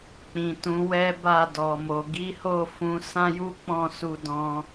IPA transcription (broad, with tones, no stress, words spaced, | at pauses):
k͡pĩ˨ tũ˨˦wɛ˦ ba˦˨dɔ˨mo˨ ɡi˨˦ho˦˨ fũ˨˦ sã˦ju˦k͡pɔ̃˦˨ su˧dɔ̃˧